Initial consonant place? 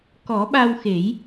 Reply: velar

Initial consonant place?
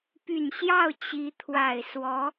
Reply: labial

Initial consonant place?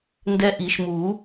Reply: alveolar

